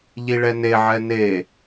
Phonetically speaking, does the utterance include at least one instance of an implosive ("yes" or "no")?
no